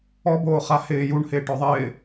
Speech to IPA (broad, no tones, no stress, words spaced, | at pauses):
ɔboːχa hɪː juɳhɪːʈɔ ðˤɪː